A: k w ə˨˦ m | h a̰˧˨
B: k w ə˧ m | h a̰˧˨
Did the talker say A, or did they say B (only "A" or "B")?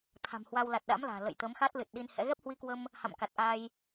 B